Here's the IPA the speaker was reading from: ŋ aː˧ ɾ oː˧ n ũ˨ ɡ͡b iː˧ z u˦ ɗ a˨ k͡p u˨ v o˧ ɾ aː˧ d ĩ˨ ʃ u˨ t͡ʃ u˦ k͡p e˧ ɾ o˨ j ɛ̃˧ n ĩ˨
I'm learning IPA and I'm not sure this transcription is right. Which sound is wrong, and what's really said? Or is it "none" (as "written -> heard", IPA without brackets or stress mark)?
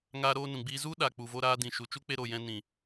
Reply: none